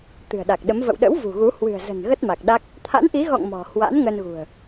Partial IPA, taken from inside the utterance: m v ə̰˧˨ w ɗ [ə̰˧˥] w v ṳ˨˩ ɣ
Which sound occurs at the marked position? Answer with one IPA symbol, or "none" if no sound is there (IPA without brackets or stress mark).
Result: ə̰˧˥